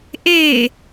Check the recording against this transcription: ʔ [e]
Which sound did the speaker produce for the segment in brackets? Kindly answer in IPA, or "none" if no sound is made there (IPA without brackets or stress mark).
e